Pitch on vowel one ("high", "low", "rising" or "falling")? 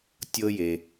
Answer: high